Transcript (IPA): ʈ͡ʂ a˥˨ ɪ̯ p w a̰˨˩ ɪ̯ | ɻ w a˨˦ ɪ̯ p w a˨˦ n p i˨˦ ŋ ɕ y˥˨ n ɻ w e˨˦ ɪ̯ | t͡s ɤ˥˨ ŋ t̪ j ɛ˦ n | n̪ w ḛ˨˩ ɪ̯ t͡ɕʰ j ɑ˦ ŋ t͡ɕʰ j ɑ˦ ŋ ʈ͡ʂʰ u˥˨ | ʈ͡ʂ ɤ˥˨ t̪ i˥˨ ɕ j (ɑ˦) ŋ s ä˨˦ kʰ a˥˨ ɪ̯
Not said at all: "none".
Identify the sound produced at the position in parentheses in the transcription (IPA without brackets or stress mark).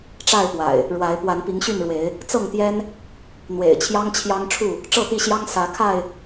ɑ˦